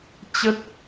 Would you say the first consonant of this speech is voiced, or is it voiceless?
voiceless